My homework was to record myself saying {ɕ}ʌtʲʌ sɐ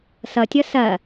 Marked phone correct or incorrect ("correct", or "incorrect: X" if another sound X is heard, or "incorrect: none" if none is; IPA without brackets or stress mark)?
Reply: incorrect: s